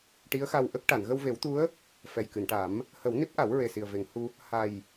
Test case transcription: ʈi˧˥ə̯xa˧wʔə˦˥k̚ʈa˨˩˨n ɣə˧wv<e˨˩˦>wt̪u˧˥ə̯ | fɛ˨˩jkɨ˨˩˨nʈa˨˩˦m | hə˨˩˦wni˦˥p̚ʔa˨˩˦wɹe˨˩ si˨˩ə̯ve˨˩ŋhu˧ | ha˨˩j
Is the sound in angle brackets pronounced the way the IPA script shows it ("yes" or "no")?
yes